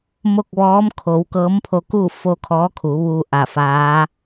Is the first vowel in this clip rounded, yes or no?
yes